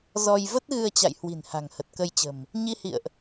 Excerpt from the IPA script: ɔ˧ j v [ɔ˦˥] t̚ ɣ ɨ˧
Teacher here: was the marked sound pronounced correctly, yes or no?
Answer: no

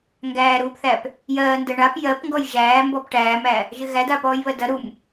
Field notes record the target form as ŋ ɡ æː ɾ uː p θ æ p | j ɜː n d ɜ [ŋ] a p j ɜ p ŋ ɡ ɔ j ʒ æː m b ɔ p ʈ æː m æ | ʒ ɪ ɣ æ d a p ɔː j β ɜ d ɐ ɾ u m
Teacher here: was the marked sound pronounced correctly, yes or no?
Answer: no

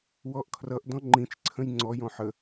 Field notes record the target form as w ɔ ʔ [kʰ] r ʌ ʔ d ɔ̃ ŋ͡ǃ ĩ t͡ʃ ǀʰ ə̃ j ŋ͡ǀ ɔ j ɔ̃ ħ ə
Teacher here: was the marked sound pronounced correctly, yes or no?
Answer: yes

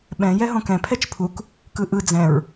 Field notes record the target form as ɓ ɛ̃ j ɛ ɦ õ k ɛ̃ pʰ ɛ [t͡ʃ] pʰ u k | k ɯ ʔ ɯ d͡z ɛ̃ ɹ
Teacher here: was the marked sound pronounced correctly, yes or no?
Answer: yes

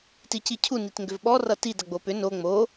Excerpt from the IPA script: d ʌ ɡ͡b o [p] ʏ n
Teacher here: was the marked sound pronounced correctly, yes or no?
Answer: yes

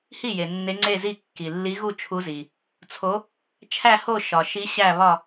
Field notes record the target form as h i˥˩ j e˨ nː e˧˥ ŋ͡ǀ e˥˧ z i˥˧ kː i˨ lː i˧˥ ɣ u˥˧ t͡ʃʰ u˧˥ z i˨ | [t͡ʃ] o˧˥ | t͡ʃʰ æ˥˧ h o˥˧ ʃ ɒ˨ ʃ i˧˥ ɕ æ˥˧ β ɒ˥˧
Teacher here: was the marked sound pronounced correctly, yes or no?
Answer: no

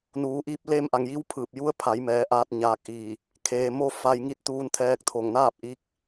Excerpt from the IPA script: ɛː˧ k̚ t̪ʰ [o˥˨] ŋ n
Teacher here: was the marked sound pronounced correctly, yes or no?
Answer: no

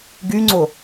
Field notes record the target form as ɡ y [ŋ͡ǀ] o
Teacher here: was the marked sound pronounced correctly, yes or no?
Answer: yes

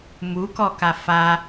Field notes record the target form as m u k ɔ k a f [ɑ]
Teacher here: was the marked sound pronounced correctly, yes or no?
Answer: no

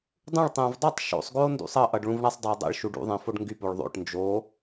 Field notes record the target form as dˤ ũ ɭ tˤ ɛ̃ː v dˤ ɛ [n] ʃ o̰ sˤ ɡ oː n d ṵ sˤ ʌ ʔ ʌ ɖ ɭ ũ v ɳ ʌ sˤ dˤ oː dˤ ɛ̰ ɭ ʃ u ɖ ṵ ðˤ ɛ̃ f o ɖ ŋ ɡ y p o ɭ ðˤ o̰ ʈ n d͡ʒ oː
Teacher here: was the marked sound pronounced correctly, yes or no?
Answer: no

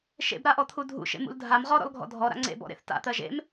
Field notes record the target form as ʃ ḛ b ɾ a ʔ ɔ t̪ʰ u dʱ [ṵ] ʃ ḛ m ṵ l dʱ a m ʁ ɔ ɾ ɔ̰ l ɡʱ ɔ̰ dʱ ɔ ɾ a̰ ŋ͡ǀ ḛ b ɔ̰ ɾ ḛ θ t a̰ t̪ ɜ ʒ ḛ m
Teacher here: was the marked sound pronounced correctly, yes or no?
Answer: yes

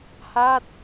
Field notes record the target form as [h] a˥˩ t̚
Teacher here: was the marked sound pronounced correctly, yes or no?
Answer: yes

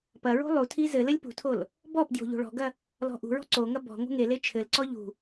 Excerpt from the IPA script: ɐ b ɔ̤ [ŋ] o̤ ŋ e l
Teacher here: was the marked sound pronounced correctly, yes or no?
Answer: yes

